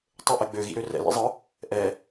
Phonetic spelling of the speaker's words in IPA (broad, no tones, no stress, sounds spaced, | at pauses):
tˤ ɘ ʔ ɛ ɡ͡b ø ɣ ḭ ɾ ø r ɛ̰ l ḭ zˤ ɯ | ʔ ɛ